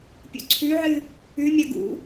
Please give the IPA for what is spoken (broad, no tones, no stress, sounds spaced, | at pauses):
pʲ ṵ ǀʰ ʉ ʕ ɨ | ʉ mʲ ɐ ɡ ṵ